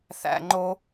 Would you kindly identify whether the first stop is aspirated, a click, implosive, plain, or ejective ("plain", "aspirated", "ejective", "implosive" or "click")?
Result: click